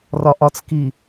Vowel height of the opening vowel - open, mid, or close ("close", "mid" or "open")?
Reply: open